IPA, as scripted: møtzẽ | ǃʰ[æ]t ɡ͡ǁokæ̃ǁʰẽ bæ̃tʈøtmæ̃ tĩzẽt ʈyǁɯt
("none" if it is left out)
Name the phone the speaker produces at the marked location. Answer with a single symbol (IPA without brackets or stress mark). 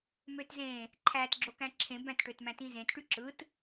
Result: æ